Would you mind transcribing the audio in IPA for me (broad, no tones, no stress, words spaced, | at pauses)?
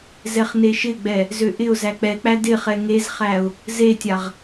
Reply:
zɛχneʃɪɡ͡bɛ | zøʔɪʊ̯zæ k͡pɛk͡pæ dɪχɛ ŋezχæʊ̯ | zetʲaʁ